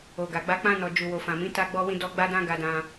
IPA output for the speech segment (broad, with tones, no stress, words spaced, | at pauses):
o˨ɡa˨ɡ͡ba˧ k͡pã˧nɔ˨ d͡ʒu˨wo˨fã˨mĩ˨˦ ta˧ɡ͡bɔ˧wĩ˧dɔ˧ ɡ͡ba˦dã˦ɡa˧dã˧